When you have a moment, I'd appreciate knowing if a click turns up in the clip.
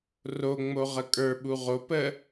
no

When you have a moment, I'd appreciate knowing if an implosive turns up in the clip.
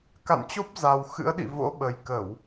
yes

